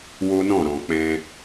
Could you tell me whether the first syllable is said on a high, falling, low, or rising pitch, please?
high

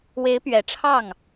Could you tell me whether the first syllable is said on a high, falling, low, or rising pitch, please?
rising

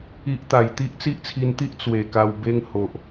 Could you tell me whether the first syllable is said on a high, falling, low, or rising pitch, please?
high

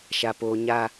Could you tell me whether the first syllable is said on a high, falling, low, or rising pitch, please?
low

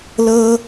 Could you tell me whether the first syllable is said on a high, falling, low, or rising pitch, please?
high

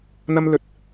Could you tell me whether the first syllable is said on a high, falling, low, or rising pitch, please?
high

